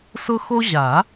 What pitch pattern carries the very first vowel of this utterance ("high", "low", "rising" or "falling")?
high